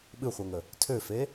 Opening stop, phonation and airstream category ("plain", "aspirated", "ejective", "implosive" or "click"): implosive